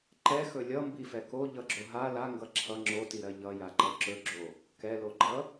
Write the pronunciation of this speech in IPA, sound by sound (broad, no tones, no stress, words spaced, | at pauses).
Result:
ǃɛxɵ lʲʌ mbifɛko ʎʌɡ͡ǁoɦa la ŋɡʌǁʰʌ ŋ͡ǁotiɾɜ ʎʌ jaǃʌǁɵɡ͡ǁo | kɛloɡ͡ǃʌ